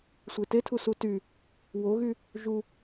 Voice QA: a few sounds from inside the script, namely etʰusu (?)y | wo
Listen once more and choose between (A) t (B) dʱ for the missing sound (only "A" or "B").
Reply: A